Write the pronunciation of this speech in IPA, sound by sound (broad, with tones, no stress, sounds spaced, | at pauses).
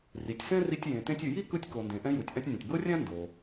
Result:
r i˩ tʲ s ɛ̃˥ r i˧ tʲ j ẽ˩ t ẽ˧ tʲ ɯ˩ j i˥ k ɯ˧ tʲ k o˩ n d ẽ˩ ʔ ɛ̃˧ j u˩ tʲ ʔ ã˧ tʲ nʲ ã˩ tʲ b ɤ˥ rʲ ã˥ n d o˩